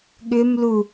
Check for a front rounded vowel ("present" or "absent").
present